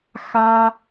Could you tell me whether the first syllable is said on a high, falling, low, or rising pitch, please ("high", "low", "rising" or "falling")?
high